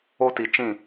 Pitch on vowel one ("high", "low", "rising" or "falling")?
high